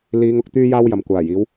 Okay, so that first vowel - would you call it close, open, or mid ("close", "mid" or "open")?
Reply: close